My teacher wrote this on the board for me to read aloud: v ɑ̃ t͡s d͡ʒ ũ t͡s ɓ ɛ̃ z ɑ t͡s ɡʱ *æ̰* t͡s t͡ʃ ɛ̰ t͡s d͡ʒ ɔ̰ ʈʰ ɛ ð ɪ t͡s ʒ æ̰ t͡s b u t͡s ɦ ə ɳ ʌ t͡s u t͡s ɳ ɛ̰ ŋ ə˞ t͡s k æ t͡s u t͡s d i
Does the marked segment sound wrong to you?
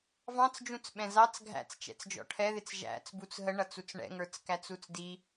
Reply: no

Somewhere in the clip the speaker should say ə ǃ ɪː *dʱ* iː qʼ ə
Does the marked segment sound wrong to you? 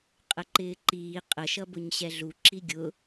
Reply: yes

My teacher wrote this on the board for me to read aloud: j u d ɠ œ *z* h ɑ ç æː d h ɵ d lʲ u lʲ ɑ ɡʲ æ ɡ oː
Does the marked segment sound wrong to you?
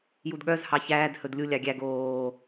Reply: no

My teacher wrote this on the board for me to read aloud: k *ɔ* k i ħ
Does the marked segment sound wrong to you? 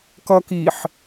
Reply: yes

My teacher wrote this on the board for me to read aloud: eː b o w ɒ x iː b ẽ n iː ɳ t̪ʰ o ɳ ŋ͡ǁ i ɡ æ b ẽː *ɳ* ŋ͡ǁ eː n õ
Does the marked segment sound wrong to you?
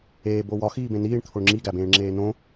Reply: no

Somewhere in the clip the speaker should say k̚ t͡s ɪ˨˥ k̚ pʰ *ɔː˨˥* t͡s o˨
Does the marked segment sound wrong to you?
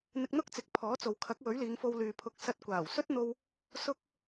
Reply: no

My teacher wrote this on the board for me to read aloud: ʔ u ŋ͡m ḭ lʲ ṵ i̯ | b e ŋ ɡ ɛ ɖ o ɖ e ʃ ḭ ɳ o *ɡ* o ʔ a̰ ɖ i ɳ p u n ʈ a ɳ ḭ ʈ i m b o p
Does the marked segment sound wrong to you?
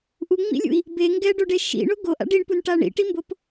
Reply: no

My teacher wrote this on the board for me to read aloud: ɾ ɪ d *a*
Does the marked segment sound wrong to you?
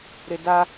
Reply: no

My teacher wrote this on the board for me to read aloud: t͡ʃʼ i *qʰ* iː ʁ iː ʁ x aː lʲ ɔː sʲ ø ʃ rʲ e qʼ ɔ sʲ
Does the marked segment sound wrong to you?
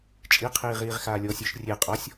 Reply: no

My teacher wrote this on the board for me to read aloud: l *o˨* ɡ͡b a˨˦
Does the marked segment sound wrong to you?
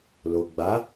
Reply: no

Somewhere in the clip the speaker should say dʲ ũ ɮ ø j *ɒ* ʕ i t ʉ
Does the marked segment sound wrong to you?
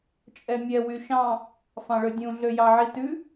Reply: yes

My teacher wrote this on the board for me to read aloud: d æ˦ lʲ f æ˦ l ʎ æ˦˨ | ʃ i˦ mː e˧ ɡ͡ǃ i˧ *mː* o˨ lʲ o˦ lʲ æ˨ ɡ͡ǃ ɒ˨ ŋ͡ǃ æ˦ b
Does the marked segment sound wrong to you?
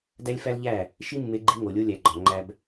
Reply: yes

